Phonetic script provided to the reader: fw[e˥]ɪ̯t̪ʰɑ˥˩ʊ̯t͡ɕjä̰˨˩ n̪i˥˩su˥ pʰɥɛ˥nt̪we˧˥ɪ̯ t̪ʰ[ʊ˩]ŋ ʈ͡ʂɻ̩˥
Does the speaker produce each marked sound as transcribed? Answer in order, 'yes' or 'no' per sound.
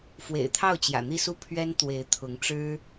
no, no

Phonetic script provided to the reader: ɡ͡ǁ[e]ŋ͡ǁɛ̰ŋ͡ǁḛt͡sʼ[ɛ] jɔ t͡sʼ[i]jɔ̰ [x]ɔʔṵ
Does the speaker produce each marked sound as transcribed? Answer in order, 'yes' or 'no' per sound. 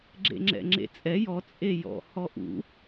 no, yes, no, no

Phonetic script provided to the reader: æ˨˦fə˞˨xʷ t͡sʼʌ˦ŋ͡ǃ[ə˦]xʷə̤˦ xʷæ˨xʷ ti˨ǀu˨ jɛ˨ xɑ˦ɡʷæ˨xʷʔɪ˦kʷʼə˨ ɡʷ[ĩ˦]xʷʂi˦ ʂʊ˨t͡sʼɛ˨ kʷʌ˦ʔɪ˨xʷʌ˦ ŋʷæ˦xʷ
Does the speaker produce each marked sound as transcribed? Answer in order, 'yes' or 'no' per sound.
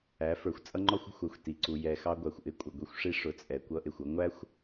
no, no

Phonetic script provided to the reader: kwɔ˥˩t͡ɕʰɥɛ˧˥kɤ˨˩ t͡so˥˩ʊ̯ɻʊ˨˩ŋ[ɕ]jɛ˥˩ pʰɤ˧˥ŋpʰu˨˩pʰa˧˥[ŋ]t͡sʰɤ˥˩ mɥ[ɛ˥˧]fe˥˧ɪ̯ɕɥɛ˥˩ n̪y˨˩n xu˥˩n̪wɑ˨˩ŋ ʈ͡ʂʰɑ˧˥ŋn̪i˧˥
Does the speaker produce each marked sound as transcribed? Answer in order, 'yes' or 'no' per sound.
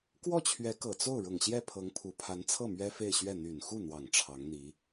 yes, no, no

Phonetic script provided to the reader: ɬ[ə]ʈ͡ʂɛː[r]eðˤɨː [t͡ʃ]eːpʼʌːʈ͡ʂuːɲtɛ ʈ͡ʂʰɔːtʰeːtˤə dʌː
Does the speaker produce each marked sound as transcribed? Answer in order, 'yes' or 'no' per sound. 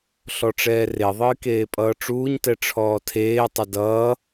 no, yes, no

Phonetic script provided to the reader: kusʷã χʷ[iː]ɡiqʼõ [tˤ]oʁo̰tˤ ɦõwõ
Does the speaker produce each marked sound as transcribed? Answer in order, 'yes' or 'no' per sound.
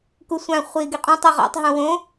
yes, yes

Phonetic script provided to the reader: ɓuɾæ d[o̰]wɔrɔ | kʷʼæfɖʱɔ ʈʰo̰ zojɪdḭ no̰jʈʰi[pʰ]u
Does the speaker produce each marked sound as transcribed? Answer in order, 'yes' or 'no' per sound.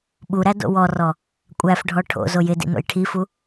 yes, no

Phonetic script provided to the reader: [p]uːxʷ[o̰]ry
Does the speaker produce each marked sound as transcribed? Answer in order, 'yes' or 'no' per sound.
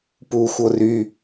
yes, no

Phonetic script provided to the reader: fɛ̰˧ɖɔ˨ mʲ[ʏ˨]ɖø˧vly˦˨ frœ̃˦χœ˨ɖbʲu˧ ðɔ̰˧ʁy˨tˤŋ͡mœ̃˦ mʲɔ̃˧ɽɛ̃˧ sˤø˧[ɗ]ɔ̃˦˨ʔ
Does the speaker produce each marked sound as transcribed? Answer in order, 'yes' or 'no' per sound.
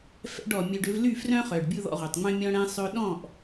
no, yes

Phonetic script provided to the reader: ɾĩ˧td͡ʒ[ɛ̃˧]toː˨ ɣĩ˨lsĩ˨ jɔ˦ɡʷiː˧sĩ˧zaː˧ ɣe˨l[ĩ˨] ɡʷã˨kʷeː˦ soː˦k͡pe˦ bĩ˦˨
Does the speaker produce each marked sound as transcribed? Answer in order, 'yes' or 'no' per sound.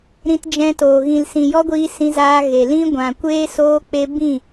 yes, no

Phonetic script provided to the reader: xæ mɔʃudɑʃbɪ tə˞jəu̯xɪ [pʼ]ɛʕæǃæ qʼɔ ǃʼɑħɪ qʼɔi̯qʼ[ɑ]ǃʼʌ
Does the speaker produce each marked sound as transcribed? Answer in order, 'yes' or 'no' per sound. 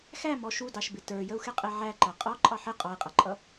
no, no

